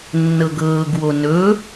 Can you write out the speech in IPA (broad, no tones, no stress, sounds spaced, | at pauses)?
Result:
nː ɤ ɡ ɤː ɡ w o n ɵ